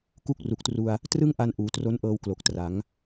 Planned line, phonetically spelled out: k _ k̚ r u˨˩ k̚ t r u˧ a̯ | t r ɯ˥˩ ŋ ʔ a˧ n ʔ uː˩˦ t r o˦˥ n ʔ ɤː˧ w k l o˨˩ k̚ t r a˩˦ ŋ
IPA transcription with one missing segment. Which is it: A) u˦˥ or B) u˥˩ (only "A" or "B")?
B